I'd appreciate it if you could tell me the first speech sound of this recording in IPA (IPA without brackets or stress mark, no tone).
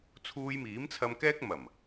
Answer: t͡sʰ